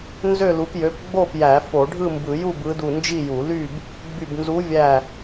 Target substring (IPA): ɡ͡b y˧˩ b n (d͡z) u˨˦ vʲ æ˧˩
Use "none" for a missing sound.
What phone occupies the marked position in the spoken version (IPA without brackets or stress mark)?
z